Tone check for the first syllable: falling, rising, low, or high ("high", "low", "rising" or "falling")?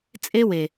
high